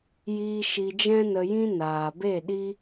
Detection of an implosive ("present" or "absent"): present